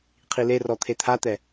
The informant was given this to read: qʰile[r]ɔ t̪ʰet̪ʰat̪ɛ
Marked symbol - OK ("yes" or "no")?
yes